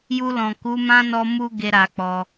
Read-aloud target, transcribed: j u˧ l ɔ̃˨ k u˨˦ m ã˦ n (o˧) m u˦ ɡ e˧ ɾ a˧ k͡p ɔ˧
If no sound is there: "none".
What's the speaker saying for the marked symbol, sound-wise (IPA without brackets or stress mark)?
ɔ˧